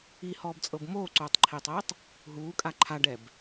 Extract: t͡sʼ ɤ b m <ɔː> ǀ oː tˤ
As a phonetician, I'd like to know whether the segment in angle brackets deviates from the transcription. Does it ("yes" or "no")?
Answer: yes